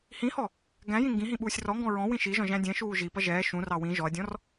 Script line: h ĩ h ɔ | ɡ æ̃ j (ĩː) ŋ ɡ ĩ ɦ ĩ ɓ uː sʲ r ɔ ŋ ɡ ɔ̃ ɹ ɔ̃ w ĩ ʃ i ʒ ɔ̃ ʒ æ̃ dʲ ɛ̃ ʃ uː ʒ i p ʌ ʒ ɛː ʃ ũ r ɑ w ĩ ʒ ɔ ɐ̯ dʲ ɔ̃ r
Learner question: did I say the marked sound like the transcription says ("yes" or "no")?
no